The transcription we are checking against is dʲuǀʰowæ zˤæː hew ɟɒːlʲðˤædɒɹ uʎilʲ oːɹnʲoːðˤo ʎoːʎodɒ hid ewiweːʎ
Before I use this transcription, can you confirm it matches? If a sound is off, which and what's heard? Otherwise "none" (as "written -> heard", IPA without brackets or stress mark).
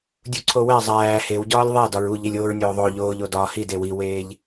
none